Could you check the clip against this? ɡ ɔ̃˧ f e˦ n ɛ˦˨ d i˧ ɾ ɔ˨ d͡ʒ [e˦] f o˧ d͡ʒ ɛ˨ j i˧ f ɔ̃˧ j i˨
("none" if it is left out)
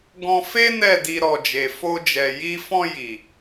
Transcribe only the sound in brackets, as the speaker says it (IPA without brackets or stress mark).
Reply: e˨